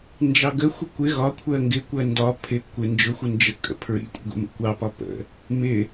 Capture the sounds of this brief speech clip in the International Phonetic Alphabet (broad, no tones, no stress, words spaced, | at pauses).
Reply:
nd͡ʒɑɡə xʷəkʷɪ ɣɒ kʷʰɜŋɡɪ kʷɜndɒ pʰɪ kʷɪ nd͡ʒʊxʷənd͡ʒə kʼə̰pʰɹḭkʷʼə̰ɡʷə̰ mə̰kʷɑpɒ pə̰ | mɪ